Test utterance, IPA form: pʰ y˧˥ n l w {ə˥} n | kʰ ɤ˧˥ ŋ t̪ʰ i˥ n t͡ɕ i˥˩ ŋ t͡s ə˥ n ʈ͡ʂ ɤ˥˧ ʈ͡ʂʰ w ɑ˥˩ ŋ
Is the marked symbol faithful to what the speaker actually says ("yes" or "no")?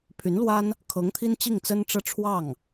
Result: no